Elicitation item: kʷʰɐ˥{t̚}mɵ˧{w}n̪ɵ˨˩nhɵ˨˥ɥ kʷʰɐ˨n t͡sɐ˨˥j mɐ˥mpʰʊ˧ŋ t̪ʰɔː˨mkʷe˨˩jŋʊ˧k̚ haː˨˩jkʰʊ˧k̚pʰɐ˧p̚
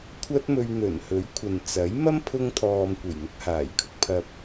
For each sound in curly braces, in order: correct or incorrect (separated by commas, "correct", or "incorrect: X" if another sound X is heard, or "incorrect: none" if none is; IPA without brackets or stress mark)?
correct, incorrect: ɥ